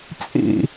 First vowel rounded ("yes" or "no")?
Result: no